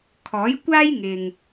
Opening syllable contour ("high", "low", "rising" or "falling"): rising